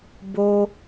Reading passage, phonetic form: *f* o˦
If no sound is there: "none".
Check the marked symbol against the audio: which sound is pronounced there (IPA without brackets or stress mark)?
b